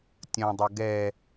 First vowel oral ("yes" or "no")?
no